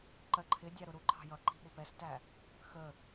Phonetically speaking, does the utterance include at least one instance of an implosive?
yes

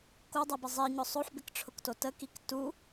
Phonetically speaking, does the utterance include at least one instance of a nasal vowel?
no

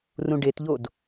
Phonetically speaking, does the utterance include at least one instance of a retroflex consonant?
yes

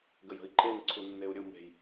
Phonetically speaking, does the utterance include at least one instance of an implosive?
no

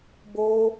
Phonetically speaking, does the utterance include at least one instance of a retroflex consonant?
no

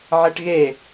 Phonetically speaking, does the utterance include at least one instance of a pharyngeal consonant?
yes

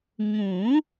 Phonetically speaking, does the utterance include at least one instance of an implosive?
no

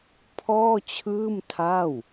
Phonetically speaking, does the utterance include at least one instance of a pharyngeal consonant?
no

